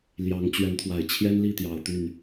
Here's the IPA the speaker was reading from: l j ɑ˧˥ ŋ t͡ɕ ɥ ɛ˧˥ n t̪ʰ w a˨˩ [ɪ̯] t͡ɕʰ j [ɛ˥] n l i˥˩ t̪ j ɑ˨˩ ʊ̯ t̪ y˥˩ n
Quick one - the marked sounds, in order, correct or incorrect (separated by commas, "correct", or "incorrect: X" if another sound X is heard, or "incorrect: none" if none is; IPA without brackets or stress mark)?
correct, correct